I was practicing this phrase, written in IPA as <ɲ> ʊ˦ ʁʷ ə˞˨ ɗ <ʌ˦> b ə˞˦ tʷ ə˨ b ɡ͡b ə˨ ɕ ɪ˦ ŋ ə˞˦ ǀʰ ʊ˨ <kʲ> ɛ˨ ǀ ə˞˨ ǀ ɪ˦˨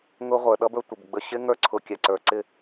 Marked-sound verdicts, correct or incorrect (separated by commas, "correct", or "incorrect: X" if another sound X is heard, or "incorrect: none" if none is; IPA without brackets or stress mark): incorrect: ŋ, correct, correct